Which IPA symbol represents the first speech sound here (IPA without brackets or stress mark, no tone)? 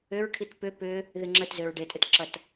ʏ